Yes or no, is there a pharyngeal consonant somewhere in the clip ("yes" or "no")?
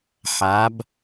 yes